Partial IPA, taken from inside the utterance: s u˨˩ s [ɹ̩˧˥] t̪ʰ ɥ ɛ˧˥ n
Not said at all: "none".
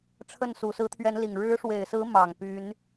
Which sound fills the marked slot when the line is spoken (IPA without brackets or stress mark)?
ɹ̩˧˥